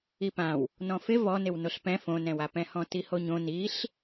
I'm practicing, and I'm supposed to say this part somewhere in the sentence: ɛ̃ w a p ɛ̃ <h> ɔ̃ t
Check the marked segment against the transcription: correct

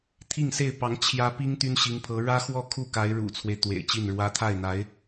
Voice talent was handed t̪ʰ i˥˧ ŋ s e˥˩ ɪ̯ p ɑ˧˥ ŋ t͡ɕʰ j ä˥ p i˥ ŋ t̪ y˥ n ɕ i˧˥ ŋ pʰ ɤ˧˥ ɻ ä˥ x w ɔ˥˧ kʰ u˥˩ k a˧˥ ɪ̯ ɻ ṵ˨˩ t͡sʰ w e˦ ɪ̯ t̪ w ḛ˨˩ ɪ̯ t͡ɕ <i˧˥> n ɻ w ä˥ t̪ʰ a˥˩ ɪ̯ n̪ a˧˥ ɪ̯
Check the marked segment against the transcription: incorrect: i˥˩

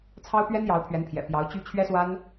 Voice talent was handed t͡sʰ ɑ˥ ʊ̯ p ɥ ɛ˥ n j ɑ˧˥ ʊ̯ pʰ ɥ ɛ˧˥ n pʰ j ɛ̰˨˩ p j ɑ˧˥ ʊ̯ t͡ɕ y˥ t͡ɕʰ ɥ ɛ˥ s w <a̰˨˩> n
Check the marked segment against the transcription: incorrect: a˥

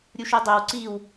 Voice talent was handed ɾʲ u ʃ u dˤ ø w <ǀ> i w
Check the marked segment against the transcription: correct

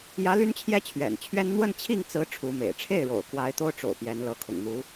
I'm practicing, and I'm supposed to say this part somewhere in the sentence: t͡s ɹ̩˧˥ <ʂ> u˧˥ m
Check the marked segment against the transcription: incorrect: ʈ͡ʂʰ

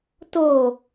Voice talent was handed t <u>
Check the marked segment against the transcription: incorrect: o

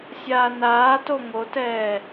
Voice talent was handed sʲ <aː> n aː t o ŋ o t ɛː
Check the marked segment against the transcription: correct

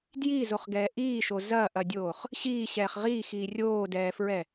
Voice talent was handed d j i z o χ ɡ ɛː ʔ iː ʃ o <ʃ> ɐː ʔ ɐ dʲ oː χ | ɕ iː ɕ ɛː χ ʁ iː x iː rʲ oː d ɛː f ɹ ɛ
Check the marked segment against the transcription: incorrect: z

